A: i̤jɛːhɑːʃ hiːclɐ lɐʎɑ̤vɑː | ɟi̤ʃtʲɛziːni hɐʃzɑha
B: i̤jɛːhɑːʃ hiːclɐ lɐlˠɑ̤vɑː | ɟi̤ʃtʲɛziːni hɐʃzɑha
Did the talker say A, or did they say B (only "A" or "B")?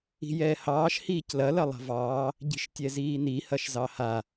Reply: B